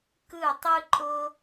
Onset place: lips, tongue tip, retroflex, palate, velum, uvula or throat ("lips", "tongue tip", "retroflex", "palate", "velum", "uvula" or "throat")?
velum